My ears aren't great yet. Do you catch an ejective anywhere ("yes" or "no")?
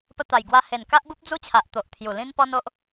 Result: no